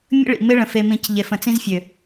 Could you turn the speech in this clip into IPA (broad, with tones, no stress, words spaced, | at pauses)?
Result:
mʲə̰˦ ɭḭ˨mɪ˦ɭə̃˨ fe˦mĩ˦c ʎe˨fə̃˨t͡sĩ˦zfʲø˨